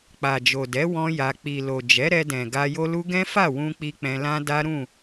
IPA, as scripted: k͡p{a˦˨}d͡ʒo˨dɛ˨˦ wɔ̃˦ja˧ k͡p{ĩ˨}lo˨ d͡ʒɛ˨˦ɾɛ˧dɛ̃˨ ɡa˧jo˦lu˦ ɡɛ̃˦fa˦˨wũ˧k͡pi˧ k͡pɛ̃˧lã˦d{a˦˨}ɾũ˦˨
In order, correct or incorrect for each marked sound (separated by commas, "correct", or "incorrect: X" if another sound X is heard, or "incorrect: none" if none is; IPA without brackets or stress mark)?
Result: incorrect: a˨, incorrect: i˨, incorrect: a˦